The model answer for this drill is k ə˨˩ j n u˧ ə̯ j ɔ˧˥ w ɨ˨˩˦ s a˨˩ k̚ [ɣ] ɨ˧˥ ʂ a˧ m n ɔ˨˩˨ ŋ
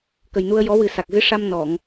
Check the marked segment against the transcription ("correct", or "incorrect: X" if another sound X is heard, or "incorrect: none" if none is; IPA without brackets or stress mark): correct